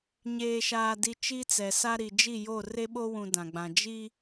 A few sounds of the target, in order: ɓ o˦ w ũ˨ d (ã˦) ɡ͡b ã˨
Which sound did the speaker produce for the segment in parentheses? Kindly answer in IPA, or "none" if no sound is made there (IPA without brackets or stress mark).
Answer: ã˨